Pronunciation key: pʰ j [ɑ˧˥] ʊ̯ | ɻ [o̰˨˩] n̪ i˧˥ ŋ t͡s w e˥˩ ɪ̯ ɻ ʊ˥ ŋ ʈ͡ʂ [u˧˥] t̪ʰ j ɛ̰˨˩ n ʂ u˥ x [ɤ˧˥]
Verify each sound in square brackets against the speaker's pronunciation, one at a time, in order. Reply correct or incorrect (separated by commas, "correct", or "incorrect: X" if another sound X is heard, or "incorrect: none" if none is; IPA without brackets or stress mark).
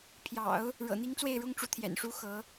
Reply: incorrect: ɑ̰˨˩˦, incorrect: ɤ̰˨˩, correct, correct